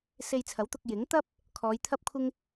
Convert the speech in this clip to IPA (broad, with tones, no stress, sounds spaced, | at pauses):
s e˧ j t͡sʰ ɐ˨˥ w t̪ ʊ˧ k̚ j ɪ˨˥ ŋ t̪ ɐ˥ p̚ | kʰ ɔː˨˧ j t̪ʰ ɐ˥ p̚ kʷʰ ɪ˥ ŋ